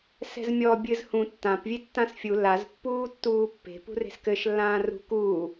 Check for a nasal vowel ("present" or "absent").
present